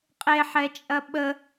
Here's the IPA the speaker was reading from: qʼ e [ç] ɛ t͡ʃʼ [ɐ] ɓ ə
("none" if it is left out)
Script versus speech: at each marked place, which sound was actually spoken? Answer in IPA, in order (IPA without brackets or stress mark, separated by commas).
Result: ħ, ɐ